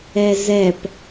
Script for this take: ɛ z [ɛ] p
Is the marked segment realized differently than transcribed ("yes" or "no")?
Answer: no